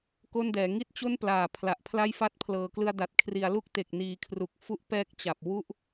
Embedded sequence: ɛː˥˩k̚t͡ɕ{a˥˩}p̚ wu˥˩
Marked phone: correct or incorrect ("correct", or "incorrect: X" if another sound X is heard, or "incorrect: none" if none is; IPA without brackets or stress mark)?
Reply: incorrect: a˨˩